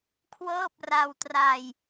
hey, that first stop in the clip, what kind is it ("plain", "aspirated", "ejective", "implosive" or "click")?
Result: aspirated